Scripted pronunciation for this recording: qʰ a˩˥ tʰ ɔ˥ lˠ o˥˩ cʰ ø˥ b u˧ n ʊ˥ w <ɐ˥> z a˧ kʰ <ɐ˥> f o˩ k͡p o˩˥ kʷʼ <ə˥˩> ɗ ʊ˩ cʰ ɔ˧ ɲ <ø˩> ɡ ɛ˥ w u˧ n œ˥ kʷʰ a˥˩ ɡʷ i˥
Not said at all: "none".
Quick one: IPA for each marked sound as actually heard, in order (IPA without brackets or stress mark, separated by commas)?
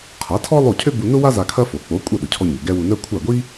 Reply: a˥, ɐ˥, ɐ˥˩, ø˩